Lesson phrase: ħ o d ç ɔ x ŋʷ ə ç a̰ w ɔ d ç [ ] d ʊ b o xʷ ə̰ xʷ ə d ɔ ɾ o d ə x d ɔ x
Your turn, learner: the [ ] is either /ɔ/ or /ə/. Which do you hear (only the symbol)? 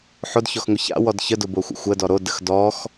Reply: ə